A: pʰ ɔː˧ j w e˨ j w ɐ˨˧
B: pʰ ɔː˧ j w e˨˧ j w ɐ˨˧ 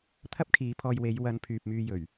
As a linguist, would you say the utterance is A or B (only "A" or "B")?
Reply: B